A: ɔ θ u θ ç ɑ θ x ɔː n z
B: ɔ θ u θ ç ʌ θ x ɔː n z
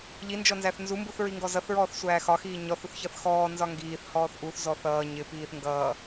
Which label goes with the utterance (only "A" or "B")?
B